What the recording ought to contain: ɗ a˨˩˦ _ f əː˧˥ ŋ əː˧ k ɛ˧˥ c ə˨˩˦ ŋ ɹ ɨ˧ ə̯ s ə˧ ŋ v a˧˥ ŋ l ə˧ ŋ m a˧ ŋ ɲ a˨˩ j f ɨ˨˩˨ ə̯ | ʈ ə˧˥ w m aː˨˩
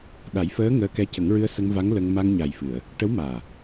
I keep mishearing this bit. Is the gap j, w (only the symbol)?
j